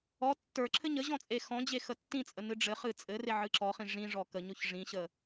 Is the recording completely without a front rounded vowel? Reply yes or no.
yes